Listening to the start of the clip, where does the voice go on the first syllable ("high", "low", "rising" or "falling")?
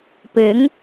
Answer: rising